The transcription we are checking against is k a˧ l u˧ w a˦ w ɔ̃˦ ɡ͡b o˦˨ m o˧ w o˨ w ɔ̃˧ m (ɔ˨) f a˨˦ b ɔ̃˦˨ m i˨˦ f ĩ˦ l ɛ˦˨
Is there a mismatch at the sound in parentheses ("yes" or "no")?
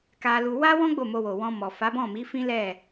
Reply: no